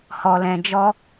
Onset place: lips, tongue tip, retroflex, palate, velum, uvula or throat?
throat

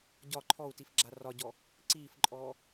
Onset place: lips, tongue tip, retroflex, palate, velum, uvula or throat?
palate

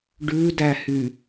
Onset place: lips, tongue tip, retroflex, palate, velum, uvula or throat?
retroflex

